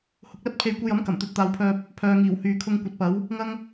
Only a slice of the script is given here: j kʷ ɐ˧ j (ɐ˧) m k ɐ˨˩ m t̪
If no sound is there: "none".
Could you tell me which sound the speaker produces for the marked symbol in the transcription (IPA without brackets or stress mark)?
ɐ˨˥